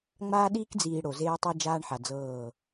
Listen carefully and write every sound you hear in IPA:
ŋ͡m aː˦ ɗ iː˦ k d͡z iː˨ ɽ o˨ z eː˦ tˤ ɤ˦ d͡ʒ aː˦ ɳ ħ a˨ d͡z ɤː˦˨

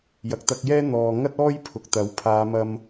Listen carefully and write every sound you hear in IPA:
j ɐ˨ k̚ t̪ ɐ˧ k̚ j ɛː˥ n̪ ɔː˨ ŋ ɐ˥ t̚ ɔː˥ j pʰ ʊ˨ k̚ t̪ ɐ˨˥ w pʰ aː˨˧ m ɐ˧ m

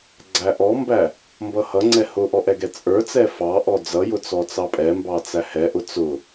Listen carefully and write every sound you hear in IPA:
ɡ͡ǀ æ ʔ ɔ m b æ | m b ʌ h ʌ ŋ͡ǀ ɛ h ʊ ʔ ɔ ʔ ɛ ɡ ɛ t͡sʼ ə˞ t͡s ɛ f ɑ ʔ ɔ d͡z ʌ j ʊ t͡s ɔ t͡s ɑ pʼ ɛ m b ɑ t͡s æ h ɛ ʔ ʊ t͡s ʊ

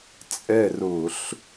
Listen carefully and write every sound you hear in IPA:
t͡sʼ ɛ˦˨ r ʊː˧˩˧ ɬ

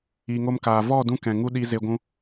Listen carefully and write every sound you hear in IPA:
iː˨ ŋ o˧ m k aː˨ v ɔ˦˨ d ũ˧ k ɛ̃˨ ŋ u˦ ɗ i˧ z e˧ ɡʷ ũ˧

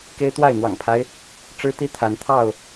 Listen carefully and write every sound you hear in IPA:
k e˦ ɪ̯ t̪ w a˥˨ ɪ̯ n̪ w ɑ̰˨˩ ŋ pʰ a˦ ɪ̯ | ʈ͡ʂ ɻ̩˦ t̪ i˦ t̪ʰ a˨˦ n t̪ʰ ɑ˥˨ ʊ̯

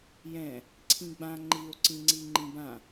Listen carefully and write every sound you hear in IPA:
j ɛ̃ | ǀʰ ĩ ɡ͡b ã ŋ͡ǃ i o̯ ǀ ĩ ŋ͡ǀ i ŋ͡ǃ ĩ b ã

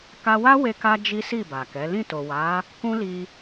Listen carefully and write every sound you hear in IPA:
k a˧ w a˦ w e˧ k a˧ d͡ʒ i˦ s i˦˨ b a˨ k ɛ˨˦ l ĩ˦˨ t o˨ w a˨˦ | k ũ˦ l i˧

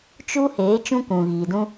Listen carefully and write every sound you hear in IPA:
t͡ʃ u˦ h eː˨˦ t͡ʃ ũ˦ k ũ˨ ɣ iː˨ d ũ˦

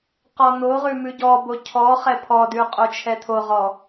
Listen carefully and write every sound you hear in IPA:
q ɔ n̪ o ʁ ʉ m ʉ ɟ ɔ b o cʰ ɔ χ ɛ pʰ ɔ d ʉ qʼ o t͡ʃʰ ɛ t̪ʰ o ʁ ɔ

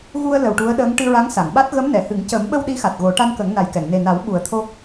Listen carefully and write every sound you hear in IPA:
ɣ u˧ ə̯ l ə˨˩ w ʈ u˧˥ ə̯ ɗ əː˧˥ ŋ ʈ ɨ˧ ɹ a˧˥ ŋ s a˨˩˨ ŋ ɓ a˦˥ t̚ ɣ ə˧˥ m n ɛ˨˩˨ h ɨ˨˩˦ ŋ c ə˨˩˦ m ɓ ə˧ w ɗ i˧˥ x a˨˩ t̚ ɣ o˨˩˦ ʈ a˧ n k ə˨˩˦ ŋ n a˨˩ j k ɛ˨˩˨ ŋ n e˨˩ n a˨˩˦ w ɓ u˨˩˦ ə̯ t̪ʰ o˧

